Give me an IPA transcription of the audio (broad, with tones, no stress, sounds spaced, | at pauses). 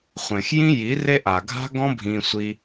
χʷ ẽ˨ x j ĩ˦ j i˨˦ r e˦ ʔ a˨ ɡʱ a̤˦ ɡ ɔ̃˦ bʱ ĩ˧ sʷ i˧